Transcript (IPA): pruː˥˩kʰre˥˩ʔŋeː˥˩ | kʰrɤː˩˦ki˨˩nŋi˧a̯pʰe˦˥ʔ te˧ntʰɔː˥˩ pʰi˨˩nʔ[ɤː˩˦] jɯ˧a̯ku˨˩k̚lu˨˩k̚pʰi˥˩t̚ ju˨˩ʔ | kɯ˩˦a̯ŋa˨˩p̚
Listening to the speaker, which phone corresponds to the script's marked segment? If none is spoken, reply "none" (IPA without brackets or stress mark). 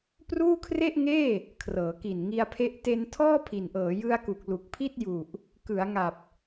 ɤː˩˦